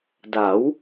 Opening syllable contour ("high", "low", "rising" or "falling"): rising